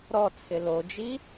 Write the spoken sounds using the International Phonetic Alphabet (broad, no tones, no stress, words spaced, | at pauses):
ɾɔt͡sʰɪ lod͡ʒi